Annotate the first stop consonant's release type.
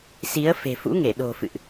implosive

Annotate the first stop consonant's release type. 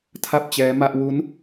aspirated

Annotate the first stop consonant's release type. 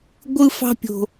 plain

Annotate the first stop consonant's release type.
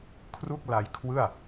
aspirated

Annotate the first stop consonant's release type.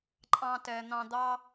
click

